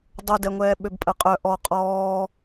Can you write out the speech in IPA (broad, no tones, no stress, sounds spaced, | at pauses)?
dˤ o d ɛ ŋʷ ɛː ɓ ø b pʼ ə qʼ œ ʔ ɔ qʼ ɔː